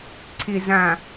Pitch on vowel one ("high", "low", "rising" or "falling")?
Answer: low